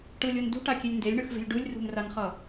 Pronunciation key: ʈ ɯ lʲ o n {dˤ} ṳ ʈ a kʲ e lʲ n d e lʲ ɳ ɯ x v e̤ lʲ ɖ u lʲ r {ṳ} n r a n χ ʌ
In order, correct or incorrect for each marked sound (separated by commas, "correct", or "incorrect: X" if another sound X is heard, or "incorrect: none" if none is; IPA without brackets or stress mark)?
incorrect: d, correct